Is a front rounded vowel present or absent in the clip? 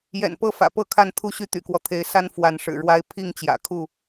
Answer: present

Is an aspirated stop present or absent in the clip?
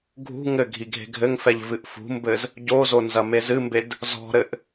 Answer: absent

